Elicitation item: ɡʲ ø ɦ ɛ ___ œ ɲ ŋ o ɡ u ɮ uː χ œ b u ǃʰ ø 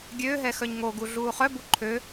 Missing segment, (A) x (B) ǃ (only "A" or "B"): A